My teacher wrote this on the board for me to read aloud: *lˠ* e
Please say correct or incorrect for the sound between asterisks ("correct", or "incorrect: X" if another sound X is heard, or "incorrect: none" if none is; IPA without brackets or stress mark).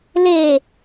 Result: incorrect: l